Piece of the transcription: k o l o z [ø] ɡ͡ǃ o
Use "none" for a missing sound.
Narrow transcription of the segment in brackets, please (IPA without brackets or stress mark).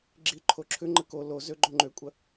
ø